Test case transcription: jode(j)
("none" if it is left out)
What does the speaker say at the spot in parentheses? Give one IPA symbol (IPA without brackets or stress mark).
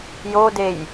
j